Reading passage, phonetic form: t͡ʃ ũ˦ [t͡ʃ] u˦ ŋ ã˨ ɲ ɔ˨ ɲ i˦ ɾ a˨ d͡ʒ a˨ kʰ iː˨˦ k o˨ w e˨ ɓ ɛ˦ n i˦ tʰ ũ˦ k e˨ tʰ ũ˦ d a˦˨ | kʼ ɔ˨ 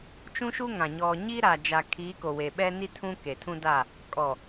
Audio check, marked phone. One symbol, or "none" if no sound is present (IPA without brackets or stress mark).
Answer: ʃ